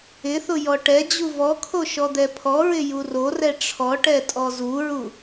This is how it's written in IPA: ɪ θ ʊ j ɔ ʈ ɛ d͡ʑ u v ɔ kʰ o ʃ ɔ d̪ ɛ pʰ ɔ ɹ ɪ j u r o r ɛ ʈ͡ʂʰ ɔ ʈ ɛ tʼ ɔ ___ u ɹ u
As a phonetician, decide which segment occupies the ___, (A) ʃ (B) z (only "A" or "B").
B